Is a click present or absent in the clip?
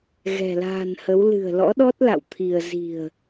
absent